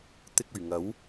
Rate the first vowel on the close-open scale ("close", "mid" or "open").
close